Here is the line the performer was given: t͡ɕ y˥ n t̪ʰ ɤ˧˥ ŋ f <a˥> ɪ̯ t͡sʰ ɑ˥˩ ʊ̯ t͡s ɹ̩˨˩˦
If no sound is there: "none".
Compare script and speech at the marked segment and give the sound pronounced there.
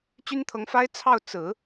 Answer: a˥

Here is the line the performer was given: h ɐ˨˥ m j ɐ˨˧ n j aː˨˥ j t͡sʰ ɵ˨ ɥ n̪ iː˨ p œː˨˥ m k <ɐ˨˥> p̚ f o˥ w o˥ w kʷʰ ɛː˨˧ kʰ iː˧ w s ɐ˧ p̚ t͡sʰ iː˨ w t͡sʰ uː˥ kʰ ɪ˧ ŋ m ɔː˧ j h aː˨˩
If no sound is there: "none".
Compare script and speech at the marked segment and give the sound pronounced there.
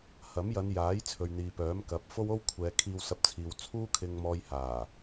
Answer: ɐ˨˥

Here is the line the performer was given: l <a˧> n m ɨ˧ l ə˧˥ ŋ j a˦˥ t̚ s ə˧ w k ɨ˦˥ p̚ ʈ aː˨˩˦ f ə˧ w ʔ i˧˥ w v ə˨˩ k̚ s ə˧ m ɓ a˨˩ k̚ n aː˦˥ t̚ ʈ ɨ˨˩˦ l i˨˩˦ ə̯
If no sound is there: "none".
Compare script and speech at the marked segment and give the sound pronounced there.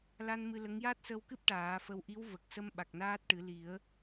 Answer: a˧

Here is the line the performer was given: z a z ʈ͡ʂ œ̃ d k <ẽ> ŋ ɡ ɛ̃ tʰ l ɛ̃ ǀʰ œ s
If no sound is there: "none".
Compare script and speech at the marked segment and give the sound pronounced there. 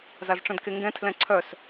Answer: e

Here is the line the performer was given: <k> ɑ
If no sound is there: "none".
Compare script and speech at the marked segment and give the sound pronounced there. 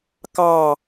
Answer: k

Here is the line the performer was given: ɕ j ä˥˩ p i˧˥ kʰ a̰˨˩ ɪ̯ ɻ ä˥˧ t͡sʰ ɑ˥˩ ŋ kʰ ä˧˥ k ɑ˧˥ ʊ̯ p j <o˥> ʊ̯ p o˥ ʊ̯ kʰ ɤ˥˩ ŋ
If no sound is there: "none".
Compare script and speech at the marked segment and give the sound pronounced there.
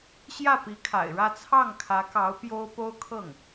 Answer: o˥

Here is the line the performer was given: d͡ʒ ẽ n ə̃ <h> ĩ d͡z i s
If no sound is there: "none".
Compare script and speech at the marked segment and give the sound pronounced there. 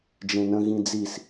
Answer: ɣ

